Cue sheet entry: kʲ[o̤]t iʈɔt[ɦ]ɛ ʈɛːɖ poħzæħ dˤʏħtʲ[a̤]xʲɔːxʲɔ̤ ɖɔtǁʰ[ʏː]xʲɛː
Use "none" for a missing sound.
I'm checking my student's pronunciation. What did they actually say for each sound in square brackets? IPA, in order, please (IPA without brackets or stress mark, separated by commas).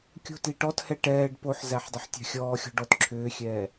o̤, h, a̤, ʏː